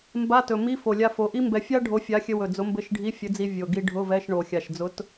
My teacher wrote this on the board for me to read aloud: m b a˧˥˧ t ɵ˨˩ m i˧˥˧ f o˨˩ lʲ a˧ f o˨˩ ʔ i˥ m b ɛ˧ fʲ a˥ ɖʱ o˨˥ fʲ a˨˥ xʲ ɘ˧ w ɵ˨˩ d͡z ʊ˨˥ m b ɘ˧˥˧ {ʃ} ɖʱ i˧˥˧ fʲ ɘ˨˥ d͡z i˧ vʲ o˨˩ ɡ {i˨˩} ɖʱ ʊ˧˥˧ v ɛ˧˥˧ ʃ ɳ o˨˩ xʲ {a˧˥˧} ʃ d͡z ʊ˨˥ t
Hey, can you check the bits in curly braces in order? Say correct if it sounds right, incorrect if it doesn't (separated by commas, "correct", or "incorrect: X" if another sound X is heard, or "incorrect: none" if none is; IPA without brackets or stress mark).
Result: correct, incorrect: i˧, incorrect: a˨˩